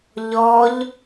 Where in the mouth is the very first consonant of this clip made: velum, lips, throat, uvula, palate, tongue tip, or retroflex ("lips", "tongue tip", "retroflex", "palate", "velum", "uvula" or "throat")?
palate